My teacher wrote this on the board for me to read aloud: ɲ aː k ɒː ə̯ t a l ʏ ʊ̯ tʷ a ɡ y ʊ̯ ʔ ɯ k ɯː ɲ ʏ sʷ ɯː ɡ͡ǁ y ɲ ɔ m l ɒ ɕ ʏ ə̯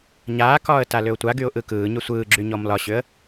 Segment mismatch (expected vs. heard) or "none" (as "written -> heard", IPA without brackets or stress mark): none